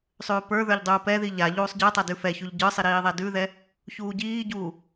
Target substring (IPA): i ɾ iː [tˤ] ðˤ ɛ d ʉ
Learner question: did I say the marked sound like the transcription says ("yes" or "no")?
no